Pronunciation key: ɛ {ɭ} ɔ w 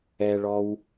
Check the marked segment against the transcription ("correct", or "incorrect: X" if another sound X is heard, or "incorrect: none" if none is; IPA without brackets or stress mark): correct